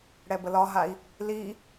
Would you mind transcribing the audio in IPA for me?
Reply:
ɽ ɛ b ə l ɒ ɦ a i̯ | l i

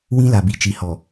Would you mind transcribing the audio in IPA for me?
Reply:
w ĩ˦ l a˨ b i˨ t͡ʃ i˨ h ɔ˨

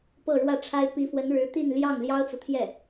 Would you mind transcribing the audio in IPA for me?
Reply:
p ɤ˥˧ ɻ w ä˥˩ ʈ͡ʂʰ a˥ ɪ̯ p i˧˥ f w ə˧˥ n ɻ ɻ̩˧˥ t̪ i˥˧ n l j ɑ˥˩ ŋ l j ɑ˥ ʊ̯ t͡s ɤ˨ t̪ʰ j ɛ˥˩

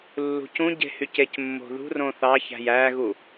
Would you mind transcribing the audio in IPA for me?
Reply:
lː ṳ c ũ ɟ e̤ h y c e c mː o̤ ð ṳ r õ θ ɑ ç æ̤ j æ ɣ u

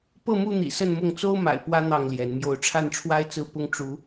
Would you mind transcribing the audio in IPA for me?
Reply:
p ɤ˥˨ m u˥˨ n̪ ḭ˨˩ s ə˥˨ n m ʊ˥˨ ŋ t͡s o˦ ʊ̯ m a̰˨˩ ɪ̯ p w ä˦ n̪ ɑ˥˨ ŋ l j ɛ˨˦ n m j o˨˦ ʊ̯ ʈ͡ʂʰ a˥˨ n ʈ͡ʂʰ w a˦ ɪ̯ t͡s ɹ̩˦ p ʊ˦ ŋ ʈ͡ʂ u˨˦

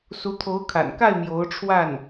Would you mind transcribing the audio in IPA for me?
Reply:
s u˧˥ t̪ʰ o˧˥ ʊ̯ kʰ a̰˨˩ n k a˥˩ ɪ̯ m j o˧˥ ʊ̯ ʈ͡ʂʰ w a˥˩ n

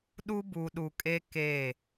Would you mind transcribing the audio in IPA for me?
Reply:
ɗ u˦ b u˨ ɗ u˨ kʼ e˦ k e˦˨

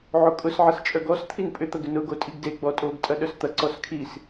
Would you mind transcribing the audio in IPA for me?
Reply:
ʕ o kʼ ʊ s ʕ ɐ s t͡ʃʼ œ ɡ ɔ s t̪ʰ i n pʼ ʏ t̪ ɐ ɡ ʏ n ʊ ɡ o tʼ i ɡ d e ɡ͡b ɔ tʼ o ɡ tʼ ɐ ɗ œ s t̪ ɐ ǀ ɔ s kʰ i s

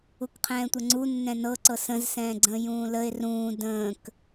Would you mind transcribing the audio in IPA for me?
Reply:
u k qʰ ɛ̃ː tʷ ə ŋ͡ǀ u nː ɛ̃ n ɤ ǀ ɤ s ə̃ z s ɛ̃ː ɡ͡ǀ ə̃ː j ũː l ə e̯ r ũː d ə̃ː k

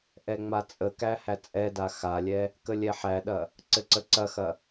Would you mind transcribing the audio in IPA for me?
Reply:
ʔ ɛ ŋ͡m a t͡sʼ ə k æ h æ t͡sʼ ɛ d a x a lʲ ɛ | k ə lʲ ɛ ħ æ ɗ ɐ | ǀ ɘ ǀ ə ǀ ɐ x ɐ

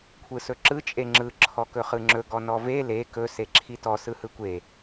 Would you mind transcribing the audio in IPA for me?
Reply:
kʷʰ ɯ s ɵ ǁ ɯ t͡ʃʼ e ŋ͡ǁ ɯ ǁʰ ɔ k ɵ χ ɯ ŋ͡ǁ ɵ ɡ ɔ n ɔ v e l e k ɵ s e ǁʰ i t ɔ s ɯ h ɯ kʷ e

